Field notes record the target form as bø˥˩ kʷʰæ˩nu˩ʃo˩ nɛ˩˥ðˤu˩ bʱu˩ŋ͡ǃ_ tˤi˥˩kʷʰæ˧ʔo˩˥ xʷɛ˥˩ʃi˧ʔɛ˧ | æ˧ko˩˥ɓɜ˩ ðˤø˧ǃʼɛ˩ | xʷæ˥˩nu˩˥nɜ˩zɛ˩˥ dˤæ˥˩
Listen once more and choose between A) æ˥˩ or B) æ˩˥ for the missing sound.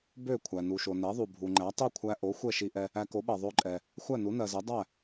B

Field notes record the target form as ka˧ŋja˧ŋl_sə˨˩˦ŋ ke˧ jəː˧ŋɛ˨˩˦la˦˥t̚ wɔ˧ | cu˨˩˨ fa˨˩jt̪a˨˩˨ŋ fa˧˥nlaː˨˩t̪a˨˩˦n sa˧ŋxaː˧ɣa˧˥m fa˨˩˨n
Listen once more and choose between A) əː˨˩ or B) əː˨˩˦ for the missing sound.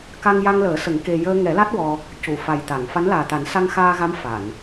B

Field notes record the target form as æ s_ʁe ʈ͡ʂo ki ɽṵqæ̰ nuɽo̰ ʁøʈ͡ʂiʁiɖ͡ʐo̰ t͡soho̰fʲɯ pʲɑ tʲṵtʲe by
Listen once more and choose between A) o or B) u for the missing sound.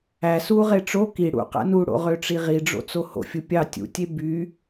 B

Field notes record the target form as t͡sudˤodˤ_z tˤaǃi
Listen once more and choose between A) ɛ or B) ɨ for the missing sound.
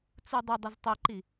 B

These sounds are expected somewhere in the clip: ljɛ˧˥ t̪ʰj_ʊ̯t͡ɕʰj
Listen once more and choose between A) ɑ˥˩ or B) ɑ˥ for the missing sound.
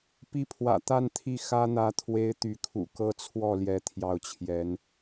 A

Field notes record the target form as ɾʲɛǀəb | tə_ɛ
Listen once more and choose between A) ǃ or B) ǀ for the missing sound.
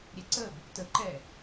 A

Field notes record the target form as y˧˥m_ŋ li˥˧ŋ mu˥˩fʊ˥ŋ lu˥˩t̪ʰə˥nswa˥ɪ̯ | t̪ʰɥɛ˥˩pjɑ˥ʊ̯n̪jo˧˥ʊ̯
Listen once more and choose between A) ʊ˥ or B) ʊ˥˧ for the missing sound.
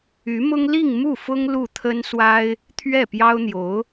A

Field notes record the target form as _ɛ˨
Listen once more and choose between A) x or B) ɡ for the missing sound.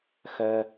A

